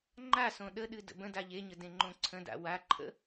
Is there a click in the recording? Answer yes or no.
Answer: yes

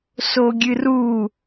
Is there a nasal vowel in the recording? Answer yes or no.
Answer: no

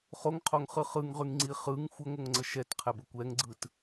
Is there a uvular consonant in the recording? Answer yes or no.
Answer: yes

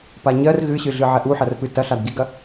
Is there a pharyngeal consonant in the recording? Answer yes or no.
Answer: yes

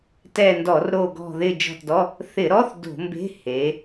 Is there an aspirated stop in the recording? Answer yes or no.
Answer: no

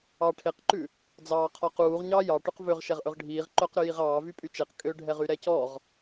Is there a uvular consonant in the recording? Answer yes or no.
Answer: yes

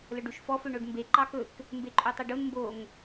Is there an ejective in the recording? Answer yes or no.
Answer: yes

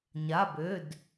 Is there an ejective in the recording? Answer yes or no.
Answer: no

